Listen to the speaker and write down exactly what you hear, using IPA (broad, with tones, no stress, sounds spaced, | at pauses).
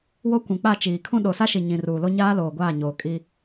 w o˦ kʷ ũ˨ k͡p a˦˨ t͡ʃ iː˨ kʰ ũ˦ ɗ o˨ s a˦ ʃ i˨ ɲ ĩ˨ r uː˨ l o˦ ɲ aː˦ l oː˨ ɡʷ aː˦˨ ɲ oː˨ kʼ i˦